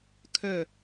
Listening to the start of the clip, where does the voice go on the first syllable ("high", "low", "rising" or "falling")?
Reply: falling